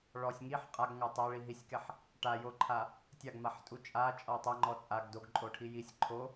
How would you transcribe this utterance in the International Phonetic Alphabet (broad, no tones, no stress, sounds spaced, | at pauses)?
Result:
ɭ ɔ sʲ ŋ i ħ qʼ a ɡ ŋ a tˤ a ɭ i ɦ i sʲ k ɛ ħ | ʈ a j o ǃʰ a | tʲ a ɡ m a ħ tʼ u t͡ʃʼ a t͡ʃʼ ɔ tˤ a ŋ͡ǃ ɔ t͡sʼ a ɡ d o ɡ ǃʼ o ʈʰ i j i sʲ ǃʰ o